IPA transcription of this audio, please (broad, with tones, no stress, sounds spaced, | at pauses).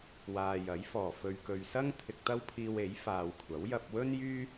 w aː˨ j ɐ˨˥ j f ɔː˨˩ f ɵ˨ ɥ k ɵ˨ ɥ s ɐ˥ ŋ t̪ʰ ɪ˧ k̚ t̪ ɐ˥ w pʰ iː˧ w e˨˥ j f aː˨ w kʷʰ ɐ˨˥ w j ɐ˧ p̚ w ɵ˥ n j yː˥